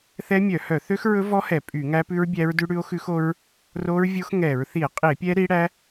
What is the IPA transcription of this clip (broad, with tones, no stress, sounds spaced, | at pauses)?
θ ɛ˦˥ mʲ œ˧˩˧ h œ˧˩˧ θ ø˦˥ x ɹ ɵ˦˥ v ɔ˦˥ h ɛ˧˩˧ pʼ y˧˩˧ ŋ æ˦˥ p ʉ˦˥ ɹ bʲ æ˦˥ ɹ d ʉ˦˥ ɽ ʉ˦˥ o̯ x ʉ˦˥ x o˦˥ ɹ | r o˦˥ ɹ vʲ o˦˥ x ŋ ɛ˧˩˧ ɹ θ i˧˩˧ e̯ qʼ i˧˩˧ e̯ pʲ ɛ˦˥ ɾ i˦˥ ɽ æ˦˥